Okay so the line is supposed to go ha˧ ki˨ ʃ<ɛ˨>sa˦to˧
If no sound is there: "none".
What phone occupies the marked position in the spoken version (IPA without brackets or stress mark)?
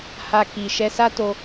ɛ˧